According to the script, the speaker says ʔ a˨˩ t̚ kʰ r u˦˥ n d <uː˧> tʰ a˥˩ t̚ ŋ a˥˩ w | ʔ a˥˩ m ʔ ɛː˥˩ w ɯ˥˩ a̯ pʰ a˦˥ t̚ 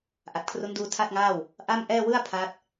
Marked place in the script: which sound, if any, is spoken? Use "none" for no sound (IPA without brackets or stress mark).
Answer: uː˧